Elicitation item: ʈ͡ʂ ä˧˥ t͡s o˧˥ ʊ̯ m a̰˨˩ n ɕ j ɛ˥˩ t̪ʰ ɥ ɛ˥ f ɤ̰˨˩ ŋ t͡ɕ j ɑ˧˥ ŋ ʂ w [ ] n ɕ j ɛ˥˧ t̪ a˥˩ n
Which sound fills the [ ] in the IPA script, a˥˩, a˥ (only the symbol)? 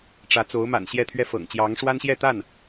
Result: a˥